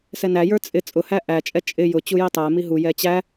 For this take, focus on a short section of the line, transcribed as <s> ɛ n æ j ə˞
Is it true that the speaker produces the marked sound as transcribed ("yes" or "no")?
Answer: yes